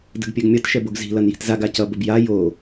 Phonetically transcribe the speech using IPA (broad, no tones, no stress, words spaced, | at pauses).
də̤ɡpʲɛɡmʲʌt ʃɛboɡzi̤ lʌnji̤tzaɡ acʌ bəbja jo